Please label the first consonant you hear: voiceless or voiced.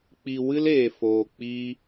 voiceless